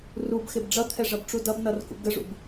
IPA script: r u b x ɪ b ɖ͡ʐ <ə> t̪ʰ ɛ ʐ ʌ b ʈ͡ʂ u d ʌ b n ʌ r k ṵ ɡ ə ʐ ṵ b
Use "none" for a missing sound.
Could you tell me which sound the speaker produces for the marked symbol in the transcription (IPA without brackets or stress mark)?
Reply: ʌ